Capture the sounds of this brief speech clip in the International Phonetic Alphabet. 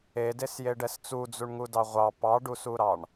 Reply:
e d e s j e ɖ ɛ s t͡s u d͡z u ɳ ŋ u d ɑ ʁʷ ɑ p ɑ ɖ u s u ɾ ɑ ɳ

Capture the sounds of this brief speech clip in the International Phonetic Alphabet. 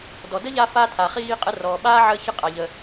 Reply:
d ɔ˨ d ə˥ ʎ a˦ f a˦ tʰ a˨ χ iː˦ qʼ ə˦ r ɔː˨ ɓ aː˥ ʕ əː˦ ç ə˦ qʼ a˨ ʎ ə˨

